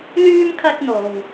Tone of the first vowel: high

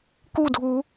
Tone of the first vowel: falling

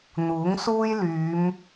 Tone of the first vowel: rising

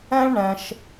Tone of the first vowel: high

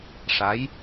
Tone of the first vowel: rising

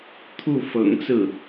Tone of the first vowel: falling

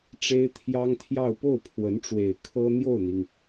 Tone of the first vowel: high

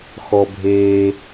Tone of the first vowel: low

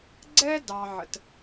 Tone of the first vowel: high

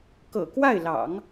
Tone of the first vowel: low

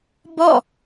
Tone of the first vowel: falling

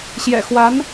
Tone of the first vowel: low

